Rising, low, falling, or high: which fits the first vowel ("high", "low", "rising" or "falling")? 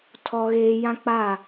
high